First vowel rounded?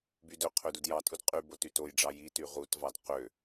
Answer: yes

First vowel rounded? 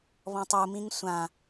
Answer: yes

